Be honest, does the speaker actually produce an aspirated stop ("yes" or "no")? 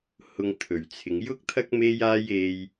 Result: yes